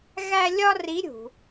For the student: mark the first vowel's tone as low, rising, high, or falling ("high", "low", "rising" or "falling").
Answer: high